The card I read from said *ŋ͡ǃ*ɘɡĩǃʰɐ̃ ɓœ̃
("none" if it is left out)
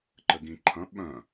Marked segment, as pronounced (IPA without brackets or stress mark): ǃ